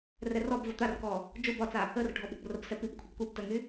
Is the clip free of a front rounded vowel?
no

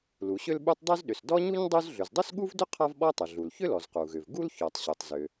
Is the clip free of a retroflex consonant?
yes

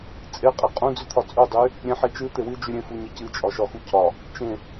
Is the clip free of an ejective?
no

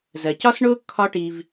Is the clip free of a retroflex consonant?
no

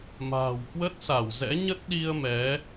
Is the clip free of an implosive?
no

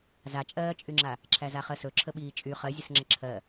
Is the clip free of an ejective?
no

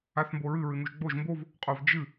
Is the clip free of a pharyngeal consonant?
yes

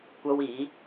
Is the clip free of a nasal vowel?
yes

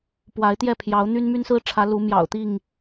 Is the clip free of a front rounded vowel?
no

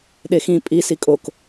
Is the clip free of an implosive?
no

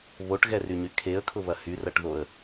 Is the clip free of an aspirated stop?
no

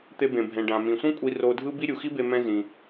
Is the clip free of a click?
yes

